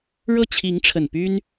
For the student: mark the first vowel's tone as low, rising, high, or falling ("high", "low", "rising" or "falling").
falling